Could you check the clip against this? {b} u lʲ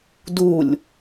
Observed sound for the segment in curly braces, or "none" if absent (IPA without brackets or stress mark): d